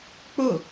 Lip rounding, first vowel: rounded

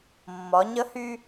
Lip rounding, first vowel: rounded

